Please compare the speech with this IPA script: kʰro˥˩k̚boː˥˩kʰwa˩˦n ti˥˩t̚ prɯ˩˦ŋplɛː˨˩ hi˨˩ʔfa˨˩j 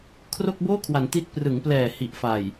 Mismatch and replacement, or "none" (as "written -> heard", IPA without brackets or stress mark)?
none